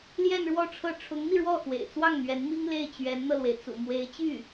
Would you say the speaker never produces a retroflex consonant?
no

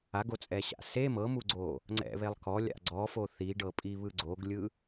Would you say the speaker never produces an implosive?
yes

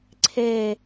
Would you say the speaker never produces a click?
no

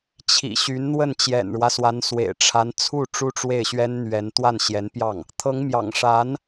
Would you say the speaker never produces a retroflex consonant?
no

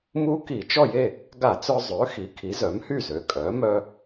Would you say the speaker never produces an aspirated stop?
no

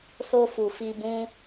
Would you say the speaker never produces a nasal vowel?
no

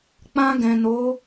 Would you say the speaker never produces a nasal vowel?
no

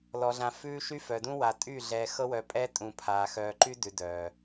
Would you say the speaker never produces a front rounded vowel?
no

